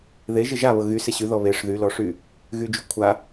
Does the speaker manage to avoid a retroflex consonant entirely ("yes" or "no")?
no